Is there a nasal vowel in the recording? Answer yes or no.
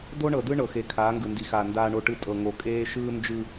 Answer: no